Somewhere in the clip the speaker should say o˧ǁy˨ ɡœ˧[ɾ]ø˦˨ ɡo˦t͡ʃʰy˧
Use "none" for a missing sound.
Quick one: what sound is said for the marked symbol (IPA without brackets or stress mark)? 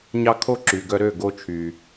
ɾ